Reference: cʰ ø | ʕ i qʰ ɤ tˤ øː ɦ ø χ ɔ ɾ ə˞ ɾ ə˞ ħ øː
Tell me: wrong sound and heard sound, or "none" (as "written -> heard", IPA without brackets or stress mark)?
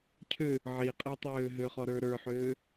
qʰ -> qʼ